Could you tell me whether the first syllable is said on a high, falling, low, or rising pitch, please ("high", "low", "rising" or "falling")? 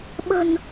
low